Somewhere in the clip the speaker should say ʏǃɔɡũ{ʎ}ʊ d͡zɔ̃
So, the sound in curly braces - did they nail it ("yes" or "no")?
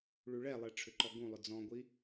no